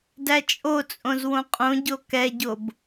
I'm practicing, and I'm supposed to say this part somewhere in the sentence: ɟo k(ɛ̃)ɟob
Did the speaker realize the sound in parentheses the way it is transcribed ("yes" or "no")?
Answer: no